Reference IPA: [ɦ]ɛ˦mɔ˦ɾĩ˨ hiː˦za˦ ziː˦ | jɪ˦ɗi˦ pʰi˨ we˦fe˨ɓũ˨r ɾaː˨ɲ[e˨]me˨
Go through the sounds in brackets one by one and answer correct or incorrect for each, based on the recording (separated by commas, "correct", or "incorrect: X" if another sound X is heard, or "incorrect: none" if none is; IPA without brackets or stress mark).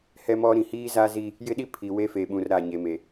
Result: incorrect: h, correct